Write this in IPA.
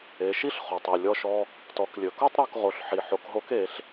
e˩˧ʃi˥ɬχo˩tˤ e˩lʲɔ˧ʃɔ˧ | tɔ˩˧klʲɵ˩ko˥tˤ ɾɔ˧kʁo˩˧ɬħi˩ ħo˩˧kɦo˧˥ke˩˧ɬ

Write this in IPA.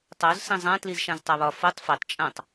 tˤoz sĩzˤã tlizʃãztˤaβɒ fotˤ fitˤ t͡ʃʼãtˤ

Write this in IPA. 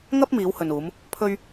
ŋɐ˥p̚ miː˨˧whɵ˨nuː˨˧m | pʰɵ˥ɥ

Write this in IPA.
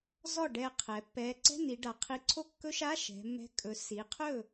zɔ˥˩ɖɛ˧˩ qʰɛ˩˧pːɛ˨˥ ǀɛ̤˧˥˧ni˩˧ɖa˩˧ qʰi˨˥ǀʰo˥˩kːɵ˦˥ʃa˧˥˧ ʃɛ̤˩˧mːɛ̤˨˥ kʼɵ˩˧si˩˧qʰɵ˥˩

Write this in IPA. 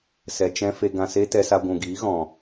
sɛ˨t͡ʃɛ̃˧ fe˧ɡã˧se˦ tɛ˧sa˧ ɡʷũ˨ɡiː˨˦ ɣɔ̃˧

